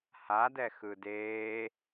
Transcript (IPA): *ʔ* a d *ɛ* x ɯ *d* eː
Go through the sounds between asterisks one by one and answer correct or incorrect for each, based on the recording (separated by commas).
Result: incorrect, correct, correct